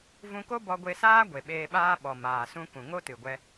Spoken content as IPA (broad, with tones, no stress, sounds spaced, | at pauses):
v ũ˧ k o˦ b ɔ˧ ɡʷ e˧ s aː˦ ɡʷ e˨ ɓ eː˧ ɓ aː˦ ɓ ɔ˨ m aː˨ s ũ˧ k ũ˨ ŋ o˦ t ɨ˨ ɡʷ ɛ˧